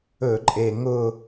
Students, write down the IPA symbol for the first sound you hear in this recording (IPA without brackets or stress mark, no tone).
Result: ɵ